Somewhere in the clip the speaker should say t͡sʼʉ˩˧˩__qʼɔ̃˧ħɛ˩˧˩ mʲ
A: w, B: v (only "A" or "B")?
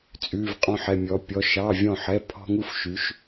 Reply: B